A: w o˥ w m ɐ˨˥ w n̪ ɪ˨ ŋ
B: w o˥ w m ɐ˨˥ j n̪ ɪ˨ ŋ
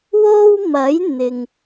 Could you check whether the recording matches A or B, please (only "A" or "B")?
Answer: B